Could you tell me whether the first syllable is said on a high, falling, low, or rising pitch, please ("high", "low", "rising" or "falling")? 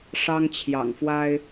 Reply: high